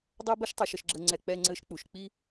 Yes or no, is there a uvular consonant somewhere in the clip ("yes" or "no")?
no